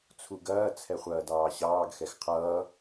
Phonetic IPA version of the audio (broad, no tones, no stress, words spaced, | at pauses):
t͡sʰuɡɐː t͡sʰɛχʷɐːdɑːɕɑːɡ xɛxqʰʌː